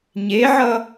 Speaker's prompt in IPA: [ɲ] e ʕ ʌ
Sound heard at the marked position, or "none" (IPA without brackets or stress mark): ɲ